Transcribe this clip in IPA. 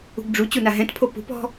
ṳ ɡ ɖ͡ʐ u t͡ɕ u n a ɦ ɛ̃ t pʰ o p ṳ p ɔ̤

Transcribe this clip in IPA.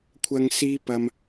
kʷʰ ɐ˨ ŋ s iː˧ p ɐ˨ m

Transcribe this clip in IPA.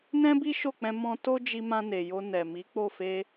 n ɛ̃˦ b i˦ ʃ o˦˨ k͡p ɛ̃˧ m ɔ̃˧ t o˦ d͡ʒ i˧ m ã˧ n e˨ j o˧ n ɛ˨ m i˨˦ k͡p o˦˨ f e˧

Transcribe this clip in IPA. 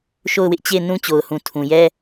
ʃ o˦˨ ʊ̯ w ɪ˦ ʔ t͡ɕ e˦˨ ɪ̯ n ũ˦ t͡ɕ o˨ ʊ̯ h ũ˨ tʰ ũ˨ j ɛ˦

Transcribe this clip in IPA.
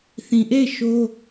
θ ĩ˨ ʔ e˦˨ ɪ̯ ʃ o˦

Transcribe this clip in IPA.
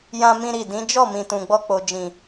j ã˦ m ĩ˦ ɾ i˦˨ d ĩ˨˦ d͡ʒ ɔ˦˨ m ĩ˨ t ũ˨ ɡ͡b ɔ˧ k͡p o˨ d͡ʒ ĩ˨

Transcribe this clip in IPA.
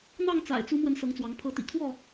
n̪ ɑ˥˨ ŋ t͡s a̰˨˩ ɪ̯ t͡s u˨˦ m w ə˨˦ n s ɤ˨˦ ŋ t͡s w ɑ˨˦ ŋ pʰ ɤ˨˦ t̪ ḭ˨˩ kʰ w ɔ˥˨

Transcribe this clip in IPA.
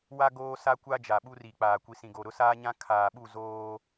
w a˦ ɡ oː˦ s a˦ kʷ a˦ d͡ʒ a˨ ɓ u˦ r i˨ k͡p aː˨ kʷ i˨ s ĩ˨ ɡ o˨ ɾ ʊ˦ s aː˦ ɲ ã˦ kʰ aː˨ ɓ u˦˨ z oː˦

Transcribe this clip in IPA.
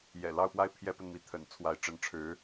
j ɛ̰˨˩ l ɑ˥˧ ʊ̯ p w a˥˩ ɪ̯ pʰ j ɛ˥ p ə˨ n m i˥˩ t̪ʰ ə̰˨˩ n t͡sʰ w a˧˥ ɪ̯ ʈ͡ʂ ə˧˥ n ʈ͡ʂʰ ɻ̩˧˥

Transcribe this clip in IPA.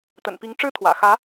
t̪ ə̰˨˩ n p i˧˥ ŋ ʈ͡ʂ ɻ̩˥ t̪ʰ w ä̰˨˩ x ä˧˥

